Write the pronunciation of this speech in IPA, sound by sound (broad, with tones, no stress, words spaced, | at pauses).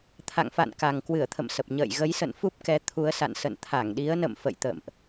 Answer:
t̪ʰa̰˧˨ŋfa̰˧˨n ka˨˩ŋkwɨ˧˩ə̯t̪ʰə̰˧˨m sə˨˩p̚ ɲə̰ː˧˨jɣə˨˦jsə̰˧˨n fu˦˥p̚kɛ˨˦ t̪ʰu˨˦ə̯sa̰˧˨n sə̰˧˨nt̪ʰa˧˩ŋɗi˨˦ə̯nə̰˧˨m fə̰˧˨jt̪ə̰ː˧˨mʔ